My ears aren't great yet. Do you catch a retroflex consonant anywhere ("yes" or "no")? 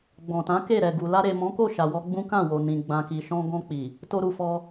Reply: no